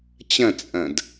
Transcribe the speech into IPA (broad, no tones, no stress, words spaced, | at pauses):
t͡ɕɐ̃t͡sʼɐ̃d